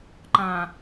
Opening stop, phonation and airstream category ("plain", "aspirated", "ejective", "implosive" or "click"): click